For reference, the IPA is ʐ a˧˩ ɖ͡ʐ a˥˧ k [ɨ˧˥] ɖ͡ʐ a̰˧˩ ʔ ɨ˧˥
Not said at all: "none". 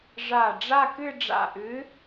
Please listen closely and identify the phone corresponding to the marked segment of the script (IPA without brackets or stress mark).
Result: ɨ˥˧